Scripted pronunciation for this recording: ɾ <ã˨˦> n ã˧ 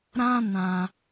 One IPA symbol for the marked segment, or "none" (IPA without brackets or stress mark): ã˦